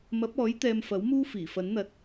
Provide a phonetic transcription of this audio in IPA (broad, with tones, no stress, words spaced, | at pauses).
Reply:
mɐ˨˥p̚ɔː˨˥j t̪ɛː˧mfɐ˨˥w muː˥fiː˨˩fɐ˨˥nn̪ɐ˧t̚